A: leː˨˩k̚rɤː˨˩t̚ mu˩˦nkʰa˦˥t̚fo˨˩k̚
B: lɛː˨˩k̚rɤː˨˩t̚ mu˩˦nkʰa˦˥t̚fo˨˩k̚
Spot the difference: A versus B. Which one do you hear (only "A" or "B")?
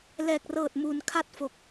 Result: B